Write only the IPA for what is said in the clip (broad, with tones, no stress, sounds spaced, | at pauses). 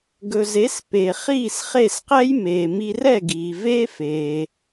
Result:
ɡ ɵ˩ z e˩˥ s p e˩ χ iː˥˩ s χ e˥˩ s q ɛ˥ j m eː˩ m i˧ r ɛ˥˩ ɡ iː˩ v eː˥ f eː˩